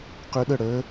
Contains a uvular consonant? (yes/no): yes